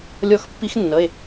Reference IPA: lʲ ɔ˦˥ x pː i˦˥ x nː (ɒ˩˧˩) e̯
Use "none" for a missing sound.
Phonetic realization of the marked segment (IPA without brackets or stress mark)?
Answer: ʌ˩˧˩